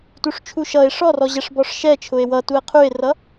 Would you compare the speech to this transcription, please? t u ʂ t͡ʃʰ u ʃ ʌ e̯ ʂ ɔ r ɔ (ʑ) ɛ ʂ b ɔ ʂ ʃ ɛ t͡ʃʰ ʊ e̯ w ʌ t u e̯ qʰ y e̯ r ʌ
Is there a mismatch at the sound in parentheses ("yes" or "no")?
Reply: no